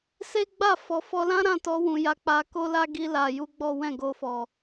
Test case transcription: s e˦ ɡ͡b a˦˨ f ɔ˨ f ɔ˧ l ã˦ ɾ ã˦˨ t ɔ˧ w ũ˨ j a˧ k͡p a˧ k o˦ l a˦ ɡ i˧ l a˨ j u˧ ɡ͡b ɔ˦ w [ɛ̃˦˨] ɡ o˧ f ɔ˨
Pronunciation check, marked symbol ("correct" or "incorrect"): correct